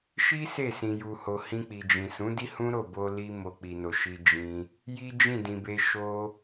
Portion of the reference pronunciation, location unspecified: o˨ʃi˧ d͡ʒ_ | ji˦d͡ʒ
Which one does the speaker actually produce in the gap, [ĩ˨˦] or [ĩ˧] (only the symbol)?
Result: ĩ˧